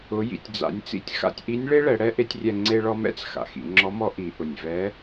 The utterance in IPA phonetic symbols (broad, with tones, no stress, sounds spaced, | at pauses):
ʊ˩˧ j ḭ˩ tʲ d͡z a̰˩˧ nʲ t͡s ḭ˧ tʲ x a̰˧ tʲ ʔ i˧˥ nʲ ɭ e˥ ɭ ɛ˩˧ ɽ ɛ˥ ʔ e˧˥ tʲ rʲ ɛ˧ ŋ͡ǀ e˧ ɭ ɔ˧ m ɛ̰˥ t͡s x a̰˩ x ḭ˩˧ ŋ͡ǁ ɔ˧˥ m ɔ˧˥ ʔ i˩˧ ʔ ʊ˩ nʲ v ɛ˧˥